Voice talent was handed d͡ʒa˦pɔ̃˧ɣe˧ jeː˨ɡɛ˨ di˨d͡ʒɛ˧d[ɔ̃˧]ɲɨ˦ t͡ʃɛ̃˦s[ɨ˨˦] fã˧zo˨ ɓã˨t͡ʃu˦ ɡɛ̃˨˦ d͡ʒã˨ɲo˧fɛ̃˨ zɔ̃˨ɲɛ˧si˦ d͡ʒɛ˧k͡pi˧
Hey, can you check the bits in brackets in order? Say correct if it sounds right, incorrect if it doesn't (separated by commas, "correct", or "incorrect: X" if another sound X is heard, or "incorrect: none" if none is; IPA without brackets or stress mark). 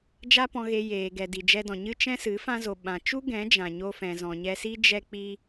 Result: incorrect: ɔ̃˨, correct